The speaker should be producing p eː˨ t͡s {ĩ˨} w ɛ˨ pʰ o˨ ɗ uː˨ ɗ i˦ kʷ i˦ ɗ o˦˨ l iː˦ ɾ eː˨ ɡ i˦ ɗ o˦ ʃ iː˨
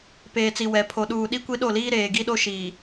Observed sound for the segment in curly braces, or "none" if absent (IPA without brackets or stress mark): i˨